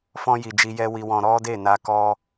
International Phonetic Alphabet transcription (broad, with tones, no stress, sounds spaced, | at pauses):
f ɔ̃˧ j i˨ d͡ʒ i˧ j ɛ˦ w i˧ w ɔ̃˧ ɾ ɔ˦ d e˦˨ n a˧ k ɔ˧